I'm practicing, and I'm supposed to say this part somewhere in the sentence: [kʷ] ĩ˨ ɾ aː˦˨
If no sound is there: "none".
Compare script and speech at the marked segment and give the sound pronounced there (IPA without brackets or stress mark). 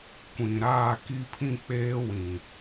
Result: kʷ